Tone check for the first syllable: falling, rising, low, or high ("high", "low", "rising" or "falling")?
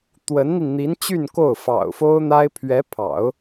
rising